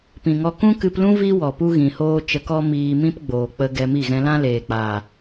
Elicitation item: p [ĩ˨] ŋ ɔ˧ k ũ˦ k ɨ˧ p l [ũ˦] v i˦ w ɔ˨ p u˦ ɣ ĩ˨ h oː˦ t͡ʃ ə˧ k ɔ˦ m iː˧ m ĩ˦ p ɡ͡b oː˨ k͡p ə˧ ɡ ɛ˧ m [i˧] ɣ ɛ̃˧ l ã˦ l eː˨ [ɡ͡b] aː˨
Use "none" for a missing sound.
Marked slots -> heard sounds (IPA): ĩ˨, ũ˦, i˦˨, k͡p

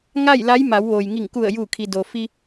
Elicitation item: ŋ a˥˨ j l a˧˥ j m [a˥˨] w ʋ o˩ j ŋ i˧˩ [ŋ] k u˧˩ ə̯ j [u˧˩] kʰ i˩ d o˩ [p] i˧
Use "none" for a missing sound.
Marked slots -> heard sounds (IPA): a˩˧, ŋ, uː˧˩, f

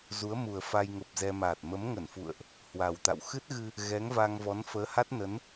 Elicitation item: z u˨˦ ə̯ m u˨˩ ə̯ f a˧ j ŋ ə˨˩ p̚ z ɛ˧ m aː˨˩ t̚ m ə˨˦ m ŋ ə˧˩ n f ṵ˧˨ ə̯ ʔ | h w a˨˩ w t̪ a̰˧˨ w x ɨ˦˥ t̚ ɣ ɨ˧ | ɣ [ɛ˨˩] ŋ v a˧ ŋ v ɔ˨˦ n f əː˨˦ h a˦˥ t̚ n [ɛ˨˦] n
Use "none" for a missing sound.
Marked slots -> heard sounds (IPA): ɛ˨˦, ə˨˦

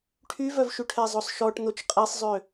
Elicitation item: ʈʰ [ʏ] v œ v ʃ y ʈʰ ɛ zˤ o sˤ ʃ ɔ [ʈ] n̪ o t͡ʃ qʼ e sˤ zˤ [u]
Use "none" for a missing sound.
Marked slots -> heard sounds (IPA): y, ʈ, ø

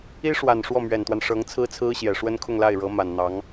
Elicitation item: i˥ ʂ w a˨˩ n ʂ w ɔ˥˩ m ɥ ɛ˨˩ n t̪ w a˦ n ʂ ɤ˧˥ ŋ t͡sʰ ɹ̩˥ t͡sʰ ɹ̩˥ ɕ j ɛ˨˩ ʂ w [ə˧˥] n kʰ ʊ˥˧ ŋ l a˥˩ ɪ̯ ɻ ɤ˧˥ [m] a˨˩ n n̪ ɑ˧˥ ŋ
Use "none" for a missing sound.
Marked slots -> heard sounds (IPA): ə˥, m

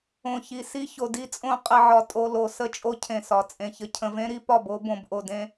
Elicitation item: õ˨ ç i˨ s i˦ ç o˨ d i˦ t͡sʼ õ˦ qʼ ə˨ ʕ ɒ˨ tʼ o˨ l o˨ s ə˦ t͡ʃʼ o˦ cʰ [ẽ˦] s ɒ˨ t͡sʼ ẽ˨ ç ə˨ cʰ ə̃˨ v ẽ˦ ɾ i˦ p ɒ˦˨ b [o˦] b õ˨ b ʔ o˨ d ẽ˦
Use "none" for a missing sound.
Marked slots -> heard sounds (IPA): ẽ˨, o˦

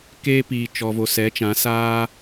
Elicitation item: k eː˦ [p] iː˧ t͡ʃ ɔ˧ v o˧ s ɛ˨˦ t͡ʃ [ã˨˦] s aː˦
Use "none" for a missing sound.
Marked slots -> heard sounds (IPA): p, ã˨˦

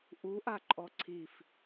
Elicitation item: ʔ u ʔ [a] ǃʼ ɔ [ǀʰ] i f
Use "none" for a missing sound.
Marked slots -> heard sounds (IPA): a, ǀʰ

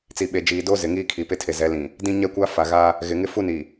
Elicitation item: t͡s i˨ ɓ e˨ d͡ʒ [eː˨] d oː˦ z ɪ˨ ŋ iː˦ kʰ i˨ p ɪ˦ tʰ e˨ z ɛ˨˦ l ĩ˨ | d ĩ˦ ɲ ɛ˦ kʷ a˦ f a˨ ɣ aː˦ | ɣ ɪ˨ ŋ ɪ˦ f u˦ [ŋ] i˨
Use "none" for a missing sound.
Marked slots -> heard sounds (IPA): iː˨, n

